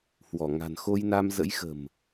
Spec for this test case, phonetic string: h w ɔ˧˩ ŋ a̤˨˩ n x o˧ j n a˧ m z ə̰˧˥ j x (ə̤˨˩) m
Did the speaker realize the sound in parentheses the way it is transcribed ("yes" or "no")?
yes